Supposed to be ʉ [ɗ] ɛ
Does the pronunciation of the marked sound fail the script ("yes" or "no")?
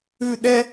no